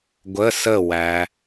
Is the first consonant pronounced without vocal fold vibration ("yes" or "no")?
no